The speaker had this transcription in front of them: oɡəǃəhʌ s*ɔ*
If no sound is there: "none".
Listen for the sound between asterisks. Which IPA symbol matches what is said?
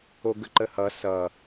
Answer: ʌ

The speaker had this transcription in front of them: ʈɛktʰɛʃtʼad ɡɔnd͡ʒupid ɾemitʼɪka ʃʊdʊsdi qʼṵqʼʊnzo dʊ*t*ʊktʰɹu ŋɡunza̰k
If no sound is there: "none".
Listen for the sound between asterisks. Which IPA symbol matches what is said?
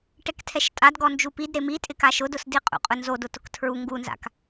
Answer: t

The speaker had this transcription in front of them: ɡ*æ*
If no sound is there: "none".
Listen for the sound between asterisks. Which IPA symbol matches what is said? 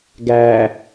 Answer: æ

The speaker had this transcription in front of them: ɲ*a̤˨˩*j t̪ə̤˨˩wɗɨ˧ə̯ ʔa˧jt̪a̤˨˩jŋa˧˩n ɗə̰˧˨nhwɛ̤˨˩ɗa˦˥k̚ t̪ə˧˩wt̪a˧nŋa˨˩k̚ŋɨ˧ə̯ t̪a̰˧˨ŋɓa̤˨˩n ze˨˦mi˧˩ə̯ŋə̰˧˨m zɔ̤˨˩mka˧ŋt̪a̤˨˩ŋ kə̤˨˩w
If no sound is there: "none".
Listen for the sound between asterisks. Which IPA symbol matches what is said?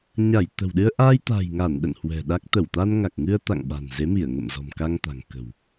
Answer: a˧˩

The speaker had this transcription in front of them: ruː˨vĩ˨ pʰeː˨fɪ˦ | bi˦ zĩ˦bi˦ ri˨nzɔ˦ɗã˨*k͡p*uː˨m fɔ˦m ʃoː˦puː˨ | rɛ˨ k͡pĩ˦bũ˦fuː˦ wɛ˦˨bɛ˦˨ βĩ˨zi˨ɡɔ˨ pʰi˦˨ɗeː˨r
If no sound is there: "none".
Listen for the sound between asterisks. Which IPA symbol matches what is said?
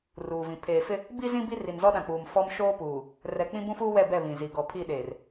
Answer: k͡p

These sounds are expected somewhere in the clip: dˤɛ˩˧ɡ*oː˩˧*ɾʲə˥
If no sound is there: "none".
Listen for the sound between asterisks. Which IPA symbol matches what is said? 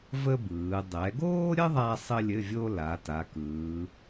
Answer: oː˥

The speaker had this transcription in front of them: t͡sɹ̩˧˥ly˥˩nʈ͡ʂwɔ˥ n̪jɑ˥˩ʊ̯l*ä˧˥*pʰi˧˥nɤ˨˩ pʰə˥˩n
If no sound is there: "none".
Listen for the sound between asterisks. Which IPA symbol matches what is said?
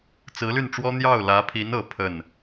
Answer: ä˧˥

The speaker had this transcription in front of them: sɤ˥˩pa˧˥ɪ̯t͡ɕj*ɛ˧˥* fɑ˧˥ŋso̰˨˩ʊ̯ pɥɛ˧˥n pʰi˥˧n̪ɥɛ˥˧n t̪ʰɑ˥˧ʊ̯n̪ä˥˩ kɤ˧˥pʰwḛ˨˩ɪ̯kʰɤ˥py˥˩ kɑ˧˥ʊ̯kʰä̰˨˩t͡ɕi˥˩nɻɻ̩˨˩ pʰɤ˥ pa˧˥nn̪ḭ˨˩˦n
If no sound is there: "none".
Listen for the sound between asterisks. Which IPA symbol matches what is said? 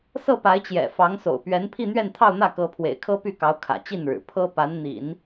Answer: ɛ̰˨˩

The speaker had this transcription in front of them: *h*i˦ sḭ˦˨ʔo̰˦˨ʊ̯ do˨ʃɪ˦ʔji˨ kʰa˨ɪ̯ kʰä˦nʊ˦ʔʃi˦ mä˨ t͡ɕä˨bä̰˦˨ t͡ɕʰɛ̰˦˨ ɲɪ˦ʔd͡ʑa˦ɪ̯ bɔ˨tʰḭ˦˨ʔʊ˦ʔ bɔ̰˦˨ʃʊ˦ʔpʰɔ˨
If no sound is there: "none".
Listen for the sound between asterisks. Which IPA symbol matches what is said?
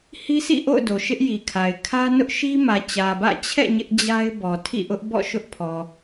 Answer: h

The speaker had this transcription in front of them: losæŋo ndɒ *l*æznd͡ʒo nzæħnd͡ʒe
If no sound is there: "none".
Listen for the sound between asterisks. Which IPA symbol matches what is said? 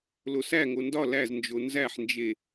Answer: l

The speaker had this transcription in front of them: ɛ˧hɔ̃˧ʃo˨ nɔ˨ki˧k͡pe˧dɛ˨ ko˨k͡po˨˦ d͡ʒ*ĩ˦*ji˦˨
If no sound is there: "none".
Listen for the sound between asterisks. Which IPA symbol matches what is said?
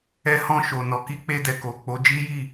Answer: i˦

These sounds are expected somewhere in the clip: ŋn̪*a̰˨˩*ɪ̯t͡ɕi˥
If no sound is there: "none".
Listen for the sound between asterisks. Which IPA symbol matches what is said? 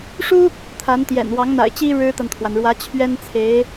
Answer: a̰˨˩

